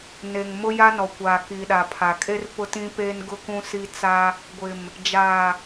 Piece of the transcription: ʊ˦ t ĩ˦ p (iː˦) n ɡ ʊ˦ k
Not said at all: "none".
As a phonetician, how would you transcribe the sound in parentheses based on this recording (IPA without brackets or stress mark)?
eː˦